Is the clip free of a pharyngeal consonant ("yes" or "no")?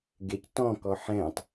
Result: no